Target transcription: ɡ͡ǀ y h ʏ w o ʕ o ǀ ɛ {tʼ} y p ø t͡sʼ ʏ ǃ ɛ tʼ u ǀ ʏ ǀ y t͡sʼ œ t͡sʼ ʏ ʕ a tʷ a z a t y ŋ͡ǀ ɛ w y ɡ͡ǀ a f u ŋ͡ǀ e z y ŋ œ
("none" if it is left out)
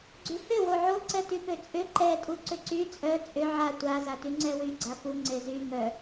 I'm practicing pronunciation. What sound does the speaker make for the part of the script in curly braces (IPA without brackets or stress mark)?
t